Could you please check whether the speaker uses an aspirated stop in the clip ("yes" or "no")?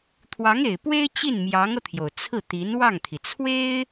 yes